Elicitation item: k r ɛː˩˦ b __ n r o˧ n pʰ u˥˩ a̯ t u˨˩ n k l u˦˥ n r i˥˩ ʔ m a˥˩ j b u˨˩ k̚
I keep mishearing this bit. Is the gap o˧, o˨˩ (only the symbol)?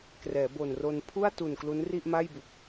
o˨˩